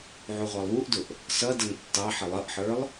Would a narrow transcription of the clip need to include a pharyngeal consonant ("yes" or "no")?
yes